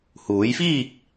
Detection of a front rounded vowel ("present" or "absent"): absent